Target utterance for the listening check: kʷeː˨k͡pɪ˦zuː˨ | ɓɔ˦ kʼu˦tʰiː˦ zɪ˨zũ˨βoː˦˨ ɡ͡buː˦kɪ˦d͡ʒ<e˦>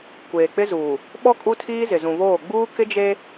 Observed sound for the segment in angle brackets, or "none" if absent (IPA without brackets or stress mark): e˦